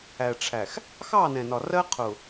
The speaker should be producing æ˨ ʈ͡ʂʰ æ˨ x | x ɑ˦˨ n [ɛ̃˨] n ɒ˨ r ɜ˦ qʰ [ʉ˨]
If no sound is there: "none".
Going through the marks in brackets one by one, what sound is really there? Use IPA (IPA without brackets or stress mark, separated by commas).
ɛ̃˨, ʊ˨